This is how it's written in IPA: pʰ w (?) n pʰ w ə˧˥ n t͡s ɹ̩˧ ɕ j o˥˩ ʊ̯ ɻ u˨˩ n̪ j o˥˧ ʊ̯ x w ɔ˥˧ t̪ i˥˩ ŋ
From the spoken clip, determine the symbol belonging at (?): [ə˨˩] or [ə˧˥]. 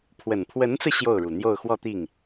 ə˨˩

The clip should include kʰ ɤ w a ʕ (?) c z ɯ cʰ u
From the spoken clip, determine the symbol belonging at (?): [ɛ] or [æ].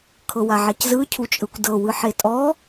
ɛ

